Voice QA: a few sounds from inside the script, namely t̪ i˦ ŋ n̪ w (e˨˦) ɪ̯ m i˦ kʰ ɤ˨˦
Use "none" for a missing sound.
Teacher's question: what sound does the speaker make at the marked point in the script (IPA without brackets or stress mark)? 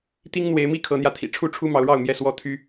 e˨˦